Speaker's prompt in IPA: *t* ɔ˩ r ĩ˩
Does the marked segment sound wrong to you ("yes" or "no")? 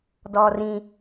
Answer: yes